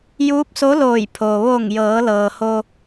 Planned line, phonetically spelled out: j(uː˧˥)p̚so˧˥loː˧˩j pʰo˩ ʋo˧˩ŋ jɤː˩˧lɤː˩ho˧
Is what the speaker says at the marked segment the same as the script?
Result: yes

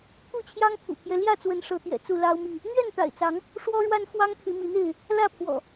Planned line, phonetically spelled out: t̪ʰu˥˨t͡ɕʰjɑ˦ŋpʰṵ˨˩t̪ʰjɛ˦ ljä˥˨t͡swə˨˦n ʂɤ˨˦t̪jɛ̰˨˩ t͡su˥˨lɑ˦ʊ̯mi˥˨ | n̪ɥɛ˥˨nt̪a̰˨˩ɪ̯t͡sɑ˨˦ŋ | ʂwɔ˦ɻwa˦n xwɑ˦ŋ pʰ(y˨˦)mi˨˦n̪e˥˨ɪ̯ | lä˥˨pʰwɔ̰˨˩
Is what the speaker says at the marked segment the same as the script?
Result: yes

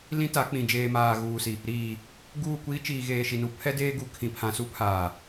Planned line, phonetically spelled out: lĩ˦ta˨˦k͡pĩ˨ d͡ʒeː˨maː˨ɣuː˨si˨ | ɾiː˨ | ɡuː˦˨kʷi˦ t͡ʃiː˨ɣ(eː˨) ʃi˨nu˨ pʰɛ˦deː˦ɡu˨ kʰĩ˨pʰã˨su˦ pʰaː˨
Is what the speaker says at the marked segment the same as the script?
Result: yes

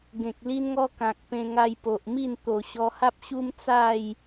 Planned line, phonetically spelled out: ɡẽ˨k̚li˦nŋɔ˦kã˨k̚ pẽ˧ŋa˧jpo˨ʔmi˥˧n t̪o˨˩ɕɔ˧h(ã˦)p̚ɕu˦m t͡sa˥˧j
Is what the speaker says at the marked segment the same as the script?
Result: no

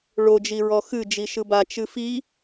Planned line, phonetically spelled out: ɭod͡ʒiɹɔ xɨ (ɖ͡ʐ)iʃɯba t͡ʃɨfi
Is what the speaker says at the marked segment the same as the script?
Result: no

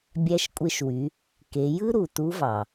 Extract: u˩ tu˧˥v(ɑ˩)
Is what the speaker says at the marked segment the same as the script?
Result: yes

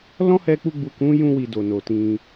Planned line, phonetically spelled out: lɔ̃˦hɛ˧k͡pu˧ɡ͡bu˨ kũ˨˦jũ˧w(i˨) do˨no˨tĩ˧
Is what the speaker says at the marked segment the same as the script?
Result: yes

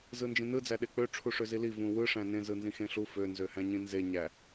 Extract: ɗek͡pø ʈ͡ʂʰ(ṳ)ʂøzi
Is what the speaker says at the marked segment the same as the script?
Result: no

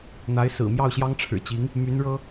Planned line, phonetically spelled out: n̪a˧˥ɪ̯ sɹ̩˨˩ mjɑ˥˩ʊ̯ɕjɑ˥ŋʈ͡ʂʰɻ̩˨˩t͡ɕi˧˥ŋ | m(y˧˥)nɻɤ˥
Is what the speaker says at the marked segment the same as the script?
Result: yes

